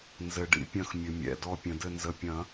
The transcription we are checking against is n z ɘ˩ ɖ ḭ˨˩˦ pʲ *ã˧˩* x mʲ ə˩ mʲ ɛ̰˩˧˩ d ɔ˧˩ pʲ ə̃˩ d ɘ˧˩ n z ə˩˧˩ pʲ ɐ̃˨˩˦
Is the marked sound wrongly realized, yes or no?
yes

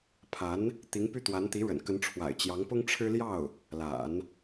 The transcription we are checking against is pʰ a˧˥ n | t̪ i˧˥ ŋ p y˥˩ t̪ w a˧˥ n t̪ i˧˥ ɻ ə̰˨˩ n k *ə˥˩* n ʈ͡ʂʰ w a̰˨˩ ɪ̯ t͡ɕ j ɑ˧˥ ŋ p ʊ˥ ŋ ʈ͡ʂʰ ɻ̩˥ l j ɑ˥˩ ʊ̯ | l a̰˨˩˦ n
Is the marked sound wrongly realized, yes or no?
yes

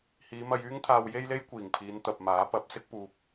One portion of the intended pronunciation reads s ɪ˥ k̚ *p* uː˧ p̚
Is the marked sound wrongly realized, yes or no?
no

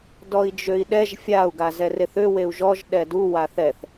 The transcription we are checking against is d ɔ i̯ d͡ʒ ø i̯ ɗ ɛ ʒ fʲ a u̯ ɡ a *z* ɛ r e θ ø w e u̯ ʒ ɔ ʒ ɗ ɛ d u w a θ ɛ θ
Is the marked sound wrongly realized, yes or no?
no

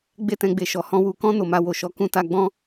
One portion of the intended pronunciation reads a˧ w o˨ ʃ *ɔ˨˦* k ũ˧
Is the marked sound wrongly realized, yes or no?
no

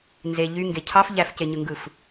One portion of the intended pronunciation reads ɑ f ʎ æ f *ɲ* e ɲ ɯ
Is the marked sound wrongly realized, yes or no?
yes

